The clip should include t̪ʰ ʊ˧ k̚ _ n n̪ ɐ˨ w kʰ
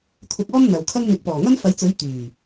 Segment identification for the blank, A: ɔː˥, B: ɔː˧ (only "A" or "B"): A